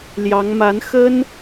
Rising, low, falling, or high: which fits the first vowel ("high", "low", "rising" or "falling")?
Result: rising